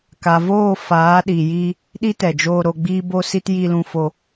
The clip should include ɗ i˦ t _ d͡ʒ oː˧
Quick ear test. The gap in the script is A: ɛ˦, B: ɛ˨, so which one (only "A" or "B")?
B